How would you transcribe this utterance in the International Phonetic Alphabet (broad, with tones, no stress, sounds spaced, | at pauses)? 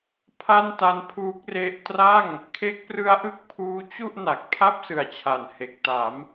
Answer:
pʰ a˥˩ n t a˦˥ n pʰ uː˦˥ k̚ r e˦˥ ʔ t r a˥˩ ŋ | kʰ e˦˥ k̚ p r ɯ˦˥ a̯ ʔ ɯ˥˩ k̚ pʰ uː˦˥ t͡ɕ u˥˩ ʔ n a˨˩ k̚ pʰ a˥˩ p̚ s ɯ˩˦ a̯ t͡ɕʰ a˨˩ n h e˨˩ k̚ t a˩˦ m